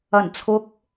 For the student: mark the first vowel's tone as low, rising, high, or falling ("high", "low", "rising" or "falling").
low